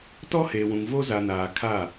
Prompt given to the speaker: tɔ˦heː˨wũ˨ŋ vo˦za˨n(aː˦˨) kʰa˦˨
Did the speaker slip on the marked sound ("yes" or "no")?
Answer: yes